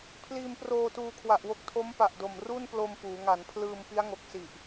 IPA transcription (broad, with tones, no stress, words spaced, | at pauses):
pʰliː˧mproː˧tuː˧ kʰwa˨˩ʔwo˦˥k̚tʰo˦˥m pa˨˩ʔdo˨˩m ru˥˩nplo˧m puː˩˦ŋa˩˦npʰlɯː˧m pi˦˥a̯ŋo˨˩k̚ si˨˩ʔ